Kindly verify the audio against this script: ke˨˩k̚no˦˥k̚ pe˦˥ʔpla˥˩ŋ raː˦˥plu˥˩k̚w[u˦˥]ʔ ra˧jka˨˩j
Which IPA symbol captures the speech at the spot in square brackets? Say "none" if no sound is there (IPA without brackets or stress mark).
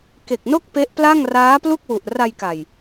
u˨˩